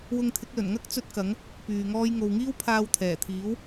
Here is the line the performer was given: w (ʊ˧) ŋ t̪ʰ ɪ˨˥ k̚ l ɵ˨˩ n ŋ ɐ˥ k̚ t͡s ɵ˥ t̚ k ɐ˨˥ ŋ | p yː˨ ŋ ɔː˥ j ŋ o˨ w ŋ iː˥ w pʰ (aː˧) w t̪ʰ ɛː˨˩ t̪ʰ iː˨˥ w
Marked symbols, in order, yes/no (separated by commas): yes, yes